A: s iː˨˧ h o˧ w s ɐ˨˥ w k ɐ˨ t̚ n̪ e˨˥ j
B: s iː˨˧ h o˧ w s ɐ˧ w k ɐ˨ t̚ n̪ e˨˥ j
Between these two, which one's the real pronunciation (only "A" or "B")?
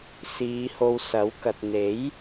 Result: A